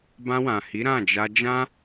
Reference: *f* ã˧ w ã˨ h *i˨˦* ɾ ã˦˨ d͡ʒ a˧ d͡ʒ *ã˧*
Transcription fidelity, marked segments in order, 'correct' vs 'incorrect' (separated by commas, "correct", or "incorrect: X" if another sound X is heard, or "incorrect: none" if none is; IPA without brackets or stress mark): incorrect: b, correct, incorrect: ã˦